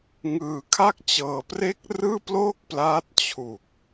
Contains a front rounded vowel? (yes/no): no